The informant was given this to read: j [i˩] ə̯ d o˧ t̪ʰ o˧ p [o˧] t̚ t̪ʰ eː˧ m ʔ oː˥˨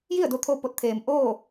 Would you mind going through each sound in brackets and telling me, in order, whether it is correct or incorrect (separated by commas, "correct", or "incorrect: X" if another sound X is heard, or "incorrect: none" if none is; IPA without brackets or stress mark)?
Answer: incorrect: i˥˨, incorrect: o˧˥